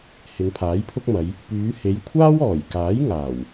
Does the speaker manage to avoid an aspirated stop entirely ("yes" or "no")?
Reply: no